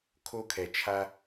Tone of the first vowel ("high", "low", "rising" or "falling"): high